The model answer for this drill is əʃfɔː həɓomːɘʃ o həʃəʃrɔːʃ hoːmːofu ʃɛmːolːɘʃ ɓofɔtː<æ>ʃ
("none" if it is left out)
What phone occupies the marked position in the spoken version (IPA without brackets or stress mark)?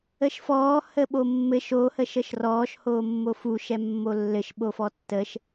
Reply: ə